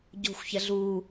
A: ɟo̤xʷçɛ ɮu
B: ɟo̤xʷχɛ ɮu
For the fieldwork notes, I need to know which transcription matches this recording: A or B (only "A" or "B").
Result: A